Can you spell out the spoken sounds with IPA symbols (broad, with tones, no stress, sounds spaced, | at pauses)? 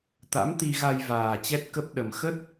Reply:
t̪ a̰˧˥ m t̪ i˧ ɣ a˧ j v aː˨˩ t͡ɕ ɛ˦˥ t̚ k ə˦˥ p̚ ɗ ə˨˩ m x ə˦˥ t̚